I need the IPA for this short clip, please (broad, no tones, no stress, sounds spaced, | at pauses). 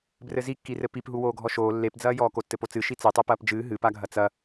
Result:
b r ɘ z i kː i r ɘ p i p ɦ u w oː ɡʱ ɔ ʃ oː lː e p d͡z ɐː j ɔː k o tː ɘ p o t͡s ɨ ʃ i t͡s e tˤ o p ɐː p d͡ʒ ɨː ɦ ɨ p a ɡʱ ɐ t͡s ɐ